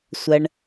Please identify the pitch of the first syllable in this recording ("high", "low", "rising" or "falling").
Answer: high